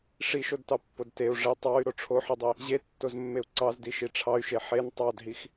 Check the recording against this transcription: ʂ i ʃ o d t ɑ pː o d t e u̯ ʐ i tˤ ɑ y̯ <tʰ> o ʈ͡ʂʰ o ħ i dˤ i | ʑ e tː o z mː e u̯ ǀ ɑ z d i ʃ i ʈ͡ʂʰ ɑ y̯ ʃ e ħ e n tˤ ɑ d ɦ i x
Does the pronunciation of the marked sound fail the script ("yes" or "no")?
yes